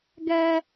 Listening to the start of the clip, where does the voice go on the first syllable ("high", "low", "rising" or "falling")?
high